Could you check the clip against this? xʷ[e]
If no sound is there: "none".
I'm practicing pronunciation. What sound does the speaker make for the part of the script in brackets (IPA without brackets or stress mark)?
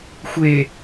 e